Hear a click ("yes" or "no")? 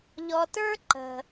yes